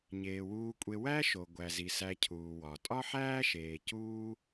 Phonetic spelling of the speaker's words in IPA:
ɲ eː˩ w uː˨ kʷʼ e˨ w æ˥ ʃ o˩ ɡʷ æ˩ z i˩ s æ˨ cʰ uː˩ w ɒ˩ tʼ ɒ˦ ħ æː˦ ʃ eː˩ c uː˦

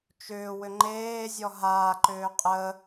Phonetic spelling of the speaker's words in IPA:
t͡ʃ ʏː w ʏ ŋ͡ǃ eː zʲ ɔ ɦ aː ǃ ʏː qʼ ə

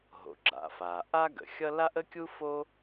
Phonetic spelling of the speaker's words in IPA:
ɦ o̰˩ ɡ͡ǁ a̰˩ f a˩ ʔ a˥ ɡ ə̰˩ xʲ ʌ˥ l a˥ ʔ ə˥ kʲ u˥ f o˥

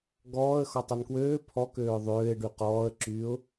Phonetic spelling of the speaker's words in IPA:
ɡ ɔː ə̯ x ɔ tˤ ɐ n k w øː pʰ ɔ k øː ʊ̯ ðˤ øː ɪ̯ ɖ y q ɔː ə̯ ǁ yː ʊ̯

